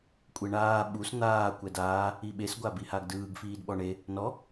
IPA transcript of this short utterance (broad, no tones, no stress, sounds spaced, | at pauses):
kʷʼ e ɳ aː ɓ u s n̪ aː kʷ ɛ d aː | i ɓ e s ɡʷ a b i h a ɡ d ɯː ɡ f iː d ɓ ɔ ɳ e | n ɔ